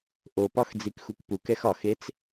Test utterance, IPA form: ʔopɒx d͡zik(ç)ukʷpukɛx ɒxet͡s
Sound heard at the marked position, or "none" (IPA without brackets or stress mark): x